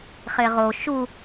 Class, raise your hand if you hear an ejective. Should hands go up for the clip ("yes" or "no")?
no